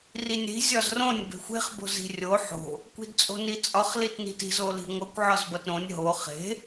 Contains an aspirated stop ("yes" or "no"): no